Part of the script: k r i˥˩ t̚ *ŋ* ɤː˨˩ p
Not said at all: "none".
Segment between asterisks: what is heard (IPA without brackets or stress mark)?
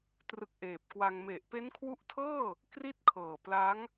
kʰ